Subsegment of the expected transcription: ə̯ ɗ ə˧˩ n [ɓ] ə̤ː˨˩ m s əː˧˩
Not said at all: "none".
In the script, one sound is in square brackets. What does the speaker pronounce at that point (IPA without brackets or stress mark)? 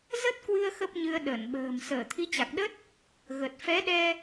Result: ɓ